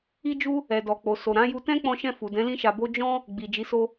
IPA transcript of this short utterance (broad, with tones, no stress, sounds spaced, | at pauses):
i˦ d͡ʒ u˦ | ɛ˨ d ɔ˨ k͡p o˨ s o˨ ɾ ã˨˦ j u˧ t ɛ̃˦ k͡p ɔ̃˧ ʃ ɛ̃˧ f u˨ d ɛ̃˨˦ l ĩ˦ ʃ a˧ b o˦ d͡ʒ ɔ̃˦ | ɡ͡b i˨ d͡ʒ i˨˦ s o˦